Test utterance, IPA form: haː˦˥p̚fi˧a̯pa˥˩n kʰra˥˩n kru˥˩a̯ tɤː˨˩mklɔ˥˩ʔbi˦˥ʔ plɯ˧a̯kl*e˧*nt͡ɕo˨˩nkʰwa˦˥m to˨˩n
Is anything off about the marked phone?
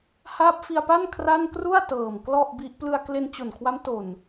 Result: no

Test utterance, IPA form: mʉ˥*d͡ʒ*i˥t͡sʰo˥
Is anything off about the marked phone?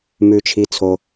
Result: yes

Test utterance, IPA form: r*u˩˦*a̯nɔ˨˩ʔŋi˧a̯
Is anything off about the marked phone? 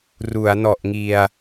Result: no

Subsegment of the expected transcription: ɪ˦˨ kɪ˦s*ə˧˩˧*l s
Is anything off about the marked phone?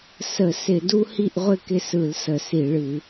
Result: yes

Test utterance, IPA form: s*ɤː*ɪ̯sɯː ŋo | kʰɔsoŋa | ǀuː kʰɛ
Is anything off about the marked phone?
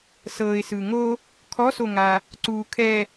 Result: no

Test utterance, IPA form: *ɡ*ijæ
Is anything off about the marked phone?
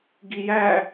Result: no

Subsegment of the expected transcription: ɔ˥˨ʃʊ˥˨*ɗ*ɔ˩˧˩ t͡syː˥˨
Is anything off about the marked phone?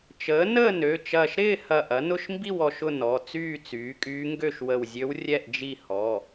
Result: yes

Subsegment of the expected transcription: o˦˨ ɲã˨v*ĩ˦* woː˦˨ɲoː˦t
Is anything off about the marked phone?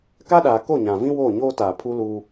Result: no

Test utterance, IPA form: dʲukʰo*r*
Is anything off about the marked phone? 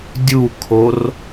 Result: no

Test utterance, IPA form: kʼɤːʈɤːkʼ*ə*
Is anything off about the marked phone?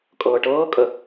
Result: no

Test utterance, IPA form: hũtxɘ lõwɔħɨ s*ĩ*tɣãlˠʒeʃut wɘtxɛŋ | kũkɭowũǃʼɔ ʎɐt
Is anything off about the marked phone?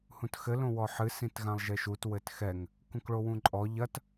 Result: no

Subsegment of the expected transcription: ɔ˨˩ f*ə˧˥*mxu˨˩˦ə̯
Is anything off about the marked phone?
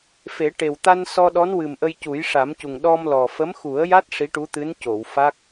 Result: no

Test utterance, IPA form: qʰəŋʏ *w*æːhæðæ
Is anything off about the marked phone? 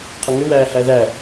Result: no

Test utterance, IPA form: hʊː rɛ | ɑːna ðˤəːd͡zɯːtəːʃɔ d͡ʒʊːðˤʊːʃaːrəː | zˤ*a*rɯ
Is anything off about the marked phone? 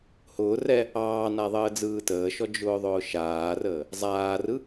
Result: yes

